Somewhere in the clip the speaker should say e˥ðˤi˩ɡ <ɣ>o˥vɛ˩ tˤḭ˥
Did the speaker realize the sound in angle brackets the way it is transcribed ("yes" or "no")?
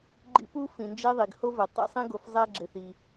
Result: no